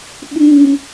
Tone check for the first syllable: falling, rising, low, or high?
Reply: low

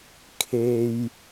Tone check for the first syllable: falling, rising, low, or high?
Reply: high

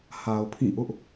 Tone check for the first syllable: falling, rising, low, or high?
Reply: low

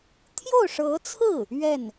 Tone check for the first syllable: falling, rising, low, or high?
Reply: falling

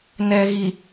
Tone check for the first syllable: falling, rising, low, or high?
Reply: low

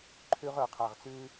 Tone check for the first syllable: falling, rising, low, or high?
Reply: high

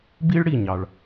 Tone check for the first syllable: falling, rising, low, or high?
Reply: high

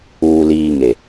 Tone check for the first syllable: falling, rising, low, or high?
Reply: low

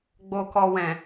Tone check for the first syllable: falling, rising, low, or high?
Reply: low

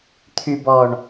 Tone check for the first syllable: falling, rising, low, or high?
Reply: low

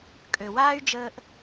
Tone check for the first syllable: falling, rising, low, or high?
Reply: low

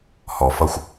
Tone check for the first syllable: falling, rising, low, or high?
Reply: low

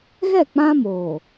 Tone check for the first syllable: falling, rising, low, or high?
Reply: falling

